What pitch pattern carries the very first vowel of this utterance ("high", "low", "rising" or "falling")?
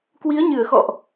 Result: rising